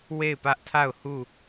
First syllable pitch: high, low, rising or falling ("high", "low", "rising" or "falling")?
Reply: falling